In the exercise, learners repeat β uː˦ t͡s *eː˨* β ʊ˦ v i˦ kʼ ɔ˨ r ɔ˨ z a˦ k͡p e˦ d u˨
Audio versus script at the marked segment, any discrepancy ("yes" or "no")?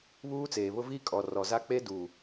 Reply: no